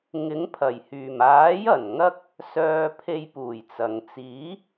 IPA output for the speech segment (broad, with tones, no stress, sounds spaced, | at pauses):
ŋ ɪ˨˥ ŋ pʰ ɐ˨˩ j h yː˨˩ m aː˨˥ j ɐ˨˩ n ŋ ɐ˥ k̚ | s œː˧ pʰ e˧ j p uː˨˩ j t͡s ɐ˨ ŋ t͡s iː˨˥